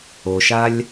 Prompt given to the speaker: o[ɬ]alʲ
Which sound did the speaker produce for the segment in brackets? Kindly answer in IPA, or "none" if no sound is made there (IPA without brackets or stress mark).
ʃ